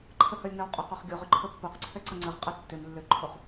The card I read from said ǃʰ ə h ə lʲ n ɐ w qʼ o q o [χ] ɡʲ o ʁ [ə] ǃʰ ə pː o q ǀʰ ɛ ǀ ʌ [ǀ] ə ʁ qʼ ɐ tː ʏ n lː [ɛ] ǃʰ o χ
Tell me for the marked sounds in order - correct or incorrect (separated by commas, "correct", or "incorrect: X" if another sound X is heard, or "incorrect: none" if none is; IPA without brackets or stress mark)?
correct, incorrect: ʏ, incorrect: ŋ͡ǀ, incorrect: ʏ